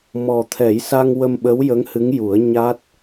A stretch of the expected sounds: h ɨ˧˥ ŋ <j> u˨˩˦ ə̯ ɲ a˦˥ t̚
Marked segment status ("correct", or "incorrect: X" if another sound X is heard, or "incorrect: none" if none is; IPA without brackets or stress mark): correct